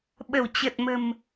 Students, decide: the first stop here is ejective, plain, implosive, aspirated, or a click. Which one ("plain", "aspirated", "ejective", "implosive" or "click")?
implosive